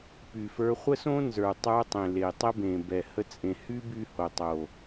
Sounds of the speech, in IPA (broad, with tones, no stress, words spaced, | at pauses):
py˨fə˞˧ χʷə˦sõ˦nzə˞˨ tˤə˞˧tˤẽ˨ le˨tˤə˦bẽ˨ bɛ˨ hə˦t͡sʼẽ˧ hy˦ by˦ho˨tˤo˨